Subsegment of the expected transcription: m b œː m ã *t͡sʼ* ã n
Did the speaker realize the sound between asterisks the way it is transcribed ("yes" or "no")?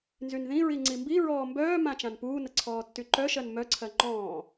no